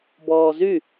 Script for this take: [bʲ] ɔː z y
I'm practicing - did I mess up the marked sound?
yes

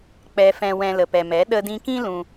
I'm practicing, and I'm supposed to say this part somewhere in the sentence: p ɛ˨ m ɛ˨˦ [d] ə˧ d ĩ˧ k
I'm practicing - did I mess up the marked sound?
yes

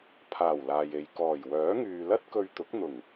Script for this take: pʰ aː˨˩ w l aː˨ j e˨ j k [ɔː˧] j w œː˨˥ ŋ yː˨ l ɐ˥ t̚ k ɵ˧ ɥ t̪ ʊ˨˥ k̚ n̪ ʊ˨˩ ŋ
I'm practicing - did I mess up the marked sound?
yes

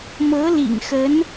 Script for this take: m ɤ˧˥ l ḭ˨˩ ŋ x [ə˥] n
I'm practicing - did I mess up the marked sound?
yes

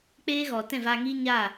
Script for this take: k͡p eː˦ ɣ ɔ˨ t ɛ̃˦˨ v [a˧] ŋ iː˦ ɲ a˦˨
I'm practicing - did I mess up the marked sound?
no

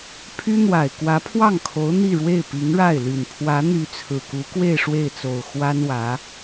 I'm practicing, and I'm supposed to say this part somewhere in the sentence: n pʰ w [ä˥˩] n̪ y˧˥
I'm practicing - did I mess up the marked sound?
yes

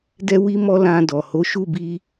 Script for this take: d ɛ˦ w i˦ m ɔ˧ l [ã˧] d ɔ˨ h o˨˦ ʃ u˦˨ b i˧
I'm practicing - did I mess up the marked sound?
no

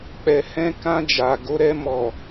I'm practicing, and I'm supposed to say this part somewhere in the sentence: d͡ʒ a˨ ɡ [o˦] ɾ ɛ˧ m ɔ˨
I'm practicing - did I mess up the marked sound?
yes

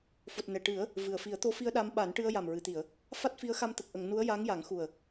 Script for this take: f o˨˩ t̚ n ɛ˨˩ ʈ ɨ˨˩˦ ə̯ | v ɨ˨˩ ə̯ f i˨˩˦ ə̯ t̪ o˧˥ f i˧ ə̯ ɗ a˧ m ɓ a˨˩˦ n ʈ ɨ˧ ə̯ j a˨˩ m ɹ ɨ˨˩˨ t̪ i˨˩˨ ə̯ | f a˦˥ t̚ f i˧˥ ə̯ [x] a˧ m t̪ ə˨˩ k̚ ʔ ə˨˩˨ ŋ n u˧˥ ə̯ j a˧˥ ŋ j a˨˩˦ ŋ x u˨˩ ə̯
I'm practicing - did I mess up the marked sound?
no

